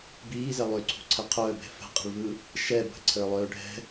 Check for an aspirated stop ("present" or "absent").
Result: present